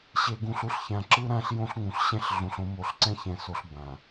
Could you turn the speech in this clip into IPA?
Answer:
ɕ e˨ ɡ ũ˨ ɬ u˦ ɬ ç ã˨ ǁ ɯ˦ ɾ ã˦ ɬ j õ˦ ɬ ŋ ũ˨ ɬ ɕ ɛ̃˦ ɬ ɮ ũ˨ ɬ õ˨˦ m o˨ ɬ ǀ ɛ̃˦ ç ɛ̃˨ s o˨ ɬ b ã˨

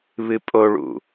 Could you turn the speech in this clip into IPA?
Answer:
β ɨ pʼ o ɭ ṵ

